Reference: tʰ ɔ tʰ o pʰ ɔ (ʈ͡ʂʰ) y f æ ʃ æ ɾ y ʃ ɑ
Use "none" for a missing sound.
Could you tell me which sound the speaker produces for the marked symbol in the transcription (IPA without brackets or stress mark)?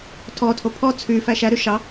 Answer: t͡sʰ